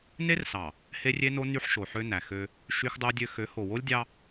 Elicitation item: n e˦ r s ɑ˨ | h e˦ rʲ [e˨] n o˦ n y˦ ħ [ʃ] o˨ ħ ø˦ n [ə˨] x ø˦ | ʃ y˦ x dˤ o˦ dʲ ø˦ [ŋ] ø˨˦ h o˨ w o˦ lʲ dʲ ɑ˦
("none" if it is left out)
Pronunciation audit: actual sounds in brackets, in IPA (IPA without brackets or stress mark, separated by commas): e˦, ʃ, æ˨, x